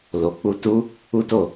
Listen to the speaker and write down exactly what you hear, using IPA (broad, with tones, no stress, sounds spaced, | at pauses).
l o˨ k͡p u˧ t u˦ | u˦ t o˦˨